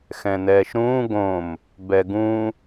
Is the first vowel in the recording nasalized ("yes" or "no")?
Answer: yes